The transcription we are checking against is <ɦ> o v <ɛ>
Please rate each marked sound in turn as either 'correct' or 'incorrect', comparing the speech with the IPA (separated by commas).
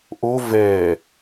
incorrect, correct